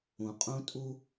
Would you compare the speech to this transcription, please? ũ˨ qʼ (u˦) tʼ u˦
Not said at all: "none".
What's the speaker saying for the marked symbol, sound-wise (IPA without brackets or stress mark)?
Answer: ũ˦